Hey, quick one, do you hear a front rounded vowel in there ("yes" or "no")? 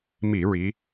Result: no